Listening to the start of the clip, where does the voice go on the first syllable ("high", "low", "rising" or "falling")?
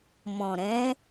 low